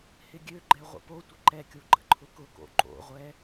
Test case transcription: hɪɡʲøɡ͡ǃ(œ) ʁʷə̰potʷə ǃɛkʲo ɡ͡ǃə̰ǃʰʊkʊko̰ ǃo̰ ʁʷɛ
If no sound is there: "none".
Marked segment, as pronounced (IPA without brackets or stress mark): ɛ